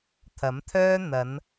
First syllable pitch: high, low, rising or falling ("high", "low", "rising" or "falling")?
rising